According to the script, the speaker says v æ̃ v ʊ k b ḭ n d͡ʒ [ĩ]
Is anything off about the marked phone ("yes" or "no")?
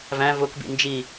yes